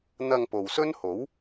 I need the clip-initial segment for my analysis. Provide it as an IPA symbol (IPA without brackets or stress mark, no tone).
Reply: n̪